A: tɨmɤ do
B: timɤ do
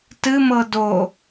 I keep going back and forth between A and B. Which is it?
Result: A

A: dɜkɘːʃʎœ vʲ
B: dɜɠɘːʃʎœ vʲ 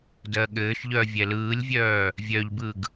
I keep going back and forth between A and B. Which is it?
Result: B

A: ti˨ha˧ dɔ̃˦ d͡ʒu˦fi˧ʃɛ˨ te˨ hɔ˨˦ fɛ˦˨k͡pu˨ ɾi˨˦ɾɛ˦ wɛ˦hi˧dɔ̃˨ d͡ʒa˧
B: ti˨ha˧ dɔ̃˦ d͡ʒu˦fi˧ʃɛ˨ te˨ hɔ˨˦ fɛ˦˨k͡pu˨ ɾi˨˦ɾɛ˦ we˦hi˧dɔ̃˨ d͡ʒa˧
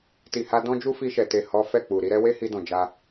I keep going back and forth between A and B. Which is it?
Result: B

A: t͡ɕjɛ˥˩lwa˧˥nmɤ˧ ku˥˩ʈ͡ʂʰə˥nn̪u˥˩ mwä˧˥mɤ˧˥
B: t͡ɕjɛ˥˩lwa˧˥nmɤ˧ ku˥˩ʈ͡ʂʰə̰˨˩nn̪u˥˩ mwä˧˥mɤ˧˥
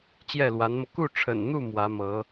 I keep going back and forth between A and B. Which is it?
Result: B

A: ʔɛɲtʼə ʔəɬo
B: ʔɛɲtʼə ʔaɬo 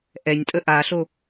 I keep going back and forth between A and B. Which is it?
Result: B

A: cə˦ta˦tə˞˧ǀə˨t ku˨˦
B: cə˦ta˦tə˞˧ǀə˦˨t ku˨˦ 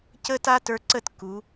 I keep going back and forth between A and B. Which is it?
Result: B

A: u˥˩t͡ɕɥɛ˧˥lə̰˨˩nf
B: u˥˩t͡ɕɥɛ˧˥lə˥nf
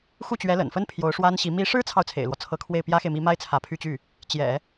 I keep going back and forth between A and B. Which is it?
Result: A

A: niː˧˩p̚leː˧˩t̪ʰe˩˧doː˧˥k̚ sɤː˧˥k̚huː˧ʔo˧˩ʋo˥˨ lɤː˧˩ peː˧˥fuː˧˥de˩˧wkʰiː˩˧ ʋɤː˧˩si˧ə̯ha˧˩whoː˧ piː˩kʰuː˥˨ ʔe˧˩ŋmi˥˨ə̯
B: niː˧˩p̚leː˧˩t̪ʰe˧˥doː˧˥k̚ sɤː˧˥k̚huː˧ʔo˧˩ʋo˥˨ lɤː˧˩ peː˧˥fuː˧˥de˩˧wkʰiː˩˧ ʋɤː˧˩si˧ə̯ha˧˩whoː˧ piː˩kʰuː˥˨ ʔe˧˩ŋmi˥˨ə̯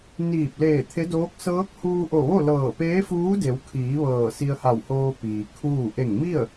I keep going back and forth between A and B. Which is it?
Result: B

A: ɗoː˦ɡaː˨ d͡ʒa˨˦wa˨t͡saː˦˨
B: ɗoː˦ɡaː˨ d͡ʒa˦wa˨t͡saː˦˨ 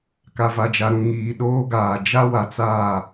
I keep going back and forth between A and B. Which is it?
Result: B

